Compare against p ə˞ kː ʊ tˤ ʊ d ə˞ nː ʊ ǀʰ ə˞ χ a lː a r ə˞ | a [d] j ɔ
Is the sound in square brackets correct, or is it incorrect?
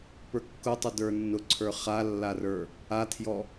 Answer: incorrect